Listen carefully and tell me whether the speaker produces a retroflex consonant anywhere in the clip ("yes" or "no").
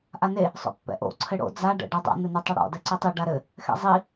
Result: yes